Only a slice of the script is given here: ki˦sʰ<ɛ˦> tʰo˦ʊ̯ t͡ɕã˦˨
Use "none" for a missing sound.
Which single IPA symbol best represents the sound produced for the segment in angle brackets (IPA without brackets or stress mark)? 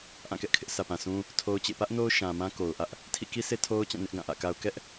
e˦